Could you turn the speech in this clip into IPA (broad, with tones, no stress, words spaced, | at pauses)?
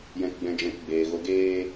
jɛ̃˧kɡ͡bɛ̃˧d͡ʒɛ̃˧k ɡ͡beː˨ɣo˧ɡeː˦